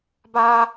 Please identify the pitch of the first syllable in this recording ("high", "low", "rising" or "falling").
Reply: high